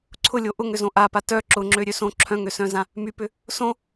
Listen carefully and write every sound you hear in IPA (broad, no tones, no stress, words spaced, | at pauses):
ǀʰʊlʲo ʔʊŋʏzõ ʔapa tœ ǁʊŋ͡ǁøɾʲø sõ ǁʰœ̃ŋøsœ̃zã | mypʏ | sõ